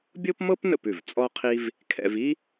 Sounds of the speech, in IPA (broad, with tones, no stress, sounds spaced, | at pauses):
bʲ ɤ˥ p m ɤ˥ p n ə̰˥˩ p ʉ˩ v t͡sʼ ɔ˥ qʰ i˥ v | kʰ ɛ̰˧ v i˥